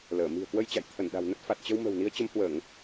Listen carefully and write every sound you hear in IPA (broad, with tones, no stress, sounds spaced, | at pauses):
l əː˧˩ m i̤˨˩ ə̯ k w ə˧ j t͡ɕ a̰˧˨ j t̪ʰ ə˧˩ n ɗ a̤˨˩ w n ə˦˥ t̚ f a˨˩ t̚ t͡ɕ ə˧ w m ə̤˨˩ w n i˨˦ ə̯ t͡ɕ ə˨˦ m h w əː˧˩˨ ŋ